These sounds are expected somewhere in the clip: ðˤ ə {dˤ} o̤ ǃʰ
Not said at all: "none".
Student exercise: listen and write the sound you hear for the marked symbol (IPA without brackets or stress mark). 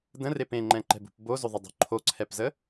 dˤ